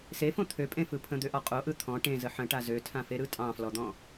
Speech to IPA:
s e f õ t̪ʰ ø pʼ ẽ f ɯ pʰ ə̃ d̪ ø ʔ ɔ qʼ o ʔ ɯ t̪ʰ ɔ̃ ʈ ẽ z ə ħ ə̃ ʈ a z ø tʰ ã f e ɾ ɯ tʼ ɑ̃ f l ɔ d̪ ɔ̃

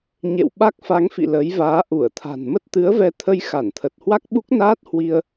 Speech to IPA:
ɲ ḛ˧˨ w ɓ a˦˥ k̚ f a˨˦ ŋ f ḭ˧˨ l əː˨˦ j v aː˨˦ ʔ u˧˩ ə̯ t̪ʰ a̤˨˩ n m ə˦˥ t̚ t̪ ɨ˨˦ ə̯ v ɛ˧ t̪ʰ ə˧ j x a˧˩ n t̪ʰ ə˨˩ t̚ h w a˦˥ k̚ ɓ u˦˥ k̚ n aː˦˥ t̚ h w i˧ ə̯

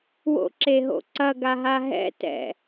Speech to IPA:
w o̰ ǁ e ɦ o̰ ǀ ɐ ɡ a ɦ a ɦ ɛ̰ t ɛ̰

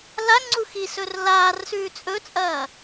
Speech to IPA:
l a ŋ͡ǀ u x i s ɵ r l aː r s ʉː t͡sʼ ɵ t͡sʼ ɐː

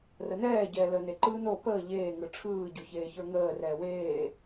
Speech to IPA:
r ə n ɛː ɟ ɛː l əː n e ǃ ɯː n o p əː ʎ eː ŋ ɯ ʈ͡ʂʰ ɯː ɟ o ç eː ç ə˞ ŋ əː r ɛː w eː

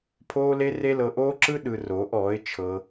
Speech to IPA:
pʰ oː˦ l e˦ r e˦ l ɤ˧ ʔ oː˦ ǁ ɯ˦ ɗ ɯ˧ r oː˨˦ ʔ ɔː˨˦ ɪ̯ t͡ʃʰ ɤ˦

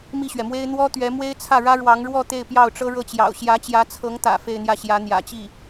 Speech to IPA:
m i˥˩ ɕ ɥ ɛ˩ m w e˥ ɪ̯ n̪ w ɔ˥ t̪ ɥ ɛ˧˥ m w e˥ ɪ̯ t͡sʰ ä˥˩ ɻ ä˥ ɻ w ɑ˧˥ ŋ ɻ w ɔ˥˧ t̪ e˥˧ ɪ̯ p j ɑ˥˩ ʊ̯ ʈ͡ʂ ɤ˥ ɻ ɤ˥˩ t͡ɕ j ɑ̰˨˩ ʊ̯ ɕ j ä˧˥ t͡ɕ j ä˧˥ t͡sʰ ɤ˧˥ ŋ t̪ ä̰˨˩ f e˥˧ ɪ̯ n̪ j ä˥˩ ɕ j ä˧˥ n̪ j ä̰˨˩ t͡ɕ i˥˩

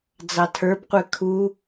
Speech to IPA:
d͡z ɑ tʰ ə˞ b qʷ ɛ kʰ u

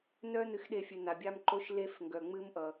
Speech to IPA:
n œ˥ n ɨ˧ x ɗ e˧ fʲ ɨ˩ n a˩ bʲ a˧ m ǃ o˧ ʃ l e˧ f ŋ ɡ œ˩ ŋ͡m ɨ˧ m ʔ ʌ˩

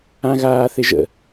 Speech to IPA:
ã ɣ aː θ ɪ ʒ ə̰

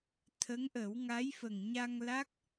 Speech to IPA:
t̪ʰ ə˧˥ ŋ ʔ ə˨˩˦ w ŋ a˧˥ j f ə˨˩ ŋ ɲ a˧ ŋ l a˦˥ k̚

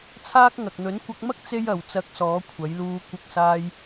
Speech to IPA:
t͡sʰ aː˥ k̚ ŋ ɐ˨ k̚ n̪ ɵ˨˥ n kʷ ɐ˧ k̚ m ɐ˥ k̚ t͡s e˥ j ɐ˨˧ w t͡s ɐ˧ k̚ s ɔː˨˥ kʷʰ ɐ˨˥ j l uː˧ kʷ ɪ˧ k̚ s aː˧ j

